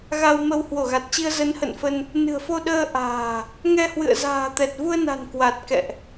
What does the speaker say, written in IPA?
ɣ a˧ w m ə˧ w h w o˧˩ ɣ a˨˩ t̚ t͡ɕ i˧ ə̯ z ə˨˦ n h ə̰˧˨ n f ə˧ n | n ɨ̤˨˩ ə̯ f o˧ ɗ əː˧ ʔ a̤ː˨˩ | ŋ ɛ˧ h w ɨ̰˧˨ ə̯ z a̤ː˨˩ t̪ ɛ˨˩ t̚ v u˧ ə̯ n a̤˨˩ n k w a˨˩ t̚ k ɛ̰˧˨ ʔ

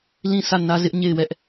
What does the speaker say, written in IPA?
l ĩ˦˨ s ä˦˨ n ä˦ z ɪ˦ ʔ ɲ e˦˨ ɪ̯ w ɛ˦ ʔ

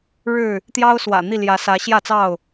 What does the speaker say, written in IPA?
ɻ ɻ̩˥˨ | t̪ j ɑ˦ ʊ̯ s w ä̰˨˩ n̪ i˥˨ l j ä˨˦ s ä˨˦ ɕ j ä˥˨ t͡s ɑ˥˨ ʊ̯

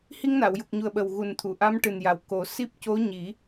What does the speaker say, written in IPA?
h i˧ ŋ n a˨˩˨ w j u˨˩ k̚ ɲ u˨˩ ə̯ ɓ ə˨˩ w ɣ u˨˩ n t̪ʰ u˨˩˨ ʔ a˧˥ m ʈ ɨ˨˩ n j a˨˩ w k o˨˩˦ s i˦˥ p̚ c o˧˥ ɲ i˨˩˦

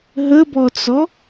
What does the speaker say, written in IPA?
ɦ ə b ɔ t͡s ɔ

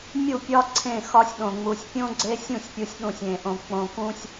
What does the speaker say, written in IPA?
mʲ u˦˨ pʲ ɒ˦ ǀʰ ẽ˦˨ x ɒ˦ sʲ ɗ õ˨ ŋ͡m u˨ sʲ pʲ õ˦ ɡ͡ǀ e˦ sʲ ũ˦˨ sʲ pʲ u˨ sʲ ɗ ũ˨ sʲ ẽ˨ ʔ õ˨ k͡p õ˨ k ũ˦ sʲ

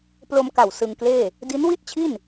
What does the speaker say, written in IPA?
p l o˧ m k a˨˩ w s ɯ˧ ŋ k l eː˥˩ | d i˦˥ n w i˥˩ t̚ t͡ɕʰ i˥˩ n

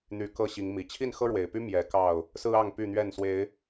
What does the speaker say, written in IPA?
n̪ y˨˩ k ɤ˥˨ ɕ i˨˦ ŋ m i˨˩ t͡ɕʰ i˥˨ n x ɤ˦ ɻ w e˨˩ ɪ̯ p y˦ m j ɛ˨˦ k ɑ˥˨ ʊ̯ | s ɹ̩˦ ɑ˥˨ ŋ p y˥˨ n̪ ɥ ɛ˥˨ n s w e˨˦ ɪ̯

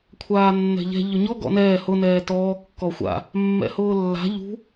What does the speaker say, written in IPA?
kʷʰ aː nː ɛ̤ ʎ ɛ̤ ʎ ʊ ɲ ɔ ɡ ɔ̰ n ɛː h ʊ n ɛː t ɔː kː ɔ xʷ a̰ | mː ɛ̰ h ʊː lː a̤ ʎ ṳ

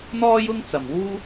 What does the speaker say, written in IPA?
n̪ ɔː˥ j ʊ˥ ŋ t͡s ɐ˨ m w uː˥

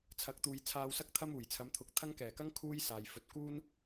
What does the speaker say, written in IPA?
t͡sʰ ɐ˨˥ k̚ t̪ uː˨ j t͡sʰ aː˨ w s ɐ˧ k̚ t̪ʰ ɐ˧ m uː˨˩ j t͡sʰ ɐ˨˧ m t̪ʰ ʊ˨˥ k̚ t̪ʰ ɐ˥ ŋ k ɛː˨˩ k ɐ˥ ŋ kʰ uː˥ j s aː˨ j f ɵ˧ t̚ k uː˥ n

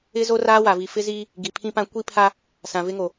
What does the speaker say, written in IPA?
ɪ˦ z o˦ r aː˦ w a˨ v i˨ f ɪ˦ z iː˦ | ɡ i˨ pʰ ĩ˦ p ã˦ kʷ i˦ pʰ a˦ | s ã˨ v ɪ˦ ŋ o˨

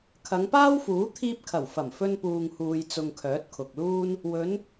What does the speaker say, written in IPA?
kʰ ɐ˨˧ ŋ p aː˥ w f uː˨˥ t̪ʰ iː˧ p̚ kʰ ɐ˨˩ w f ɐ˨˩ m f ɵ˧ n p uː˨ ŋ h uː˨ j t͡s ʊ˧ ŋ kʰ œː˨˥ t̚ kʰ ʊ˨ k̚ l uː˥ n | w ɵ˨˧ n

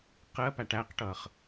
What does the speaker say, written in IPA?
q ɜ p æ ʈ æ q ʈ ʌː χ

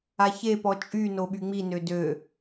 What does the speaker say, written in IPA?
a ç e p ɔ t͡ʃʼ y n o ɓ y ŋ͡m i n ø d ø

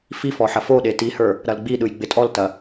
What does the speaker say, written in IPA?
f i f ɔ ħ ɐ f o ɗ e t i h ə˞ | ɾ ɐ l ɡ͡b i ɗ ɯ j ɡ͡b ɪ tʼ ɔ l t ɐ

